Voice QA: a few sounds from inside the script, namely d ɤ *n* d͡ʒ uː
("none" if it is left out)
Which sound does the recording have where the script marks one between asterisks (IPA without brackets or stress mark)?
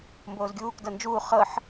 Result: n